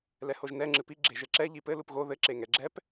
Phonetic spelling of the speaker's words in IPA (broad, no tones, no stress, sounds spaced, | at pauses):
l ɛ h o ʒ n ɛ ŋ͡ǁ ɨ p i ɡ͡ǁ e ʒ ɘ ǁ ɛ ʎ i p ɘ l u p ɣ o ð ɘ ǁ e ŋ ɛ ɡ͡ǁ ɛ p